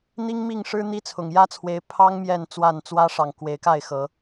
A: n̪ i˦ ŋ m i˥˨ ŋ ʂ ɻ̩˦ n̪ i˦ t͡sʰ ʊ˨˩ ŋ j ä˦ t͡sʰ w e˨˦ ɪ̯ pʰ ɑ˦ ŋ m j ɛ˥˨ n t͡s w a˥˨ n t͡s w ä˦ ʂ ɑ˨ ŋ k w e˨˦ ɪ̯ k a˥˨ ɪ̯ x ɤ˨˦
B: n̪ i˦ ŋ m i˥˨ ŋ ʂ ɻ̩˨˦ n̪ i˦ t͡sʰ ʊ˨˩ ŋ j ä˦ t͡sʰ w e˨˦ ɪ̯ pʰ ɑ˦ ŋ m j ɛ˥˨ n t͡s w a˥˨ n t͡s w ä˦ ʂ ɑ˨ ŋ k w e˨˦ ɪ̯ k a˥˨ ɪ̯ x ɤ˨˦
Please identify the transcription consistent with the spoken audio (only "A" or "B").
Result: A